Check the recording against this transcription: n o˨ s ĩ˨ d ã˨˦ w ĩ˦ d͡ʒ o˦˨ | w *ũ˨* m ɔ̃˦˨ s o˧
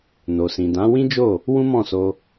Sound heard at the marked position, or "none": ũ˦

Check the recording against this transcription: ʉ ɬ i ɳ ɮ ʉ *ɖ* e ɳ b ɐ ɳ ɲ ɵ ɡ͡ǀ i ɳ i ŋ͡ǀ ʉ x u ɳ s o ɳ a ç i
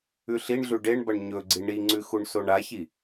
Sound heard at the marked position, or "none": ɖ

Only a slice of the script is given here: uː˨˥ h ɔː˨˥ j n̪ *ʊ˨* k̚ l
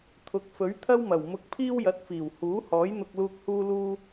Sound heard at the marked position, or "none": ʊ˧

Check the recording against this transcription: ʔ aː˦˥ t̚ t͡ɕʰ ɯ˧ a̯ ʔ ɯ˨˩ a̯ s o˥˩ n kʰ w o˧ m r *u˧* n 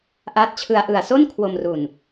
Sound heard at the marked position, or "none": u˨˩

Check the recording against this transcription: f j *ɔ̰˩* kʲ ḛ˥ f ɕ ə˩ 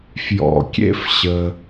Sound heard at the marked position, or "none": ɔ̰˩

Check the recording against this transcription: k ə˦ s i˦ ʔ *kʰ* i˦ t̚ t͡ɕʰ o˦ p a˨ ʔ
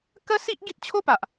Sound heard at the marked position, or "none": ɡ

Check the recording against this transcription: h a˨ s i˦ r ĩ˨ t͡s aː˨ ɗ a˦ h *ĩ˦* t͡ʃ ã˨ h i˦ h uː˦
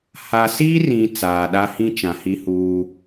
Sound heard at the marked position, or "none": ĩ˦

